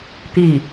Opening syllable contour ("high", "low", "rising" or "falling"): falling